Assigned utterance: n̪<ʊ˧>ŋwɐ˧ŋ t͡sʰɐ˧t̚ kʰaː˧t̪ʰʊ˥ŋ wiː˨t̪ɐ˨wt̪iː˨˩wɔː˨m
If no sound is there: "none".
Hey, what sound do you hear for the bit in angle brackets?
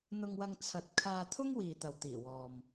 ʊ˧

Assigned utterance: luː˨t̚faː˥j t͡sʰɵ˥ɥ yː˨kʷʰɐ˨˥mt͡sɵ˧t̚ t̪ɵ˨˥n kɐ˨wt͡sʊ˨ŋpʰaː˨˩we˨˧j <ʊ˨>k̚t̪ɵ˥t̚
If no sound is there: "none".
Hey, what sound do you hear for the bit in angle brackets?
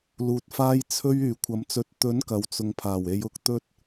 ʊ˧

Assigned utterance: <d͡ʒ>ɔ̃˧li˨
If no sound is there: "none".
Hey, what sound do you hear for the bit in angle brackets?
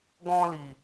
ɡ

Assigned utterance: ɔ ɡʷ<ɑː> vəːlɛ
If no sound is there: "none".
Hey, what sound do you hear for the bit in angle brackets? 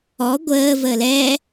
əː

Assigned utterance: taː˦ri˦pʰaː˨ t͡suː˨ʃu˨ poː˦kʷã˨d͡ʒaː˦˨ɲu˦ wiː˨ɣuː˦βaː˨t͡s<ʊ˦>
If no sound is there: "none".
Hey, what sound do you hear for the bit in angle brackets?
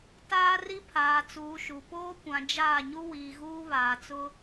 ʊ˦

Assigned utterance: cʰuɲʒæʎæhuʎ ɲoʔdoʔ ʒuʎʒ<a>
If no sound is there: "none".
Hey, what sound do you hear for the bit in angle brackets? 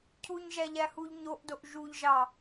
ɑ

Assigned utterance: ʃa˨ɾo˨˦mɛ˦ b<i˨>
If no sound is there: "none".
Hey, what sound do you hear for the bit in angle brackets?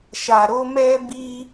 i˦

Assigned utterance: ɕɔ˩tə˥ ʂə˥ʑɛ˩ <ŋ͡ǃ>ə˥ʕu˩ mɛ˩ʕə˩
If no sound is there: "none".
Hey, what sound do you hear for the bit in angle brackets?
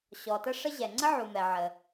ŋ͡ǀ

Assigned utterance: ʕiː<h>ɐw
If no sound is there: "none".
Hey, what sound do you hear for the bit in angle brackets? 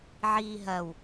ɦ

